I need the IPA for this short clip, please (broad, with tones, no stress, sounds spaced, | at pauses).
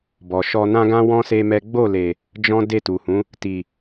b ɔ˨ ʃ ɔ˧ n ã˦ ɡ ã˦ w ɔ̃˦ s e˦ m ɛ˦ ɡ͡b o˦˨ l e˨ | d͡ʒ ɔ̃˦ d e˦˨ t u˨ h ũ˨˦ | t i˨